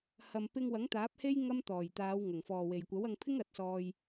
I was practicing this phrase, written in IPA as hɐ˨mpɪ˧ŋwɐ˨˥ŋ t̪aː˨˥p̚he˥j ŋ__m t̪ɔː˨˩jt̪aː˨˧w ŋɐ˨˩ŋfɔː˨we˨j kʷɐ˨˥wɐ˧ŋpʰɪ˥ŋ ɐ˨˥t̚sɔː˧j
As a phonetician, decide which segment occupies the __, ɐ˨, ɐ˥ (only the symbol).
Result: ɐ˥